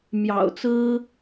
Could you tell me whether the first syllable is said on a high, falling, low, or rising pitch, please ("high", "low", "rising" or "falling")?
low